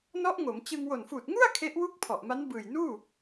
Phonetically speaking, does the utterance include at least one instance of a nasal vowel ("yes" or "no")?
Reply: no